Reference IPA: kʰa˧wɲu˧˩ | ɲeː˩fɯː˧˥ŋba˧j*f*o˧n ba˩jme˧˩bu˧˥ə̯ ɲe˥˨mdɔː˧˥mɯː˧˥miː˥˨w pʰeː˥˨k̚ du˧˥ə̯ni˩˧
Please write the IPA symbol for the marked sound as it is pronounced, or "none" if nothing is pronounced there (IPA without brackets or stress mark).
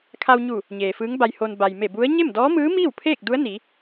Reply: h